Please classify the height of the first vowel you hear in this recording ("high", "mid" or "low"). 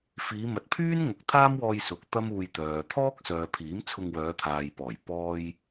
high